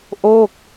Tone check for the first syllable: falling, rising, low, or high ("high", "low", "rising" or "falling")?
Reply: falling